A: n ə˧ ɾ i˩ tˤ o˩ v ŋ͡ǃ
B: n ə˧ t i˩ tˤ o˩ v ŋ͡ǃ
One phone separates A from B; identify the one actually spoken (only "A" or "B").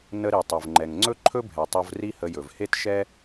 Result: A